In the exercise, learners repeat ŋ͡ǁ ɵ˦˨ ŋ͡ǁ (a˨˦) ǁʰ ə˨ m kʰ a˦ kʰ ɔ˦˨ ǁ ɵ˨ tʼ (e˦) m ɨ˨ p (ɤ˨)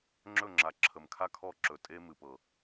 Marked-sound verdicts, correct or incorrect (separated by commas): incorrect, correct, correct